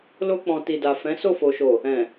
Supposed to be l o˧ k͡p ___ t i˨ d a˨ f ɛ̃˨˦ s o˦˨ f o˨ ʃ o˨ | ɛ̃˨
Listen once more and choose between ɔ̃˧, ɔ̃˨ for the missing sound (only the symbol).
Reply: ɔ̃˨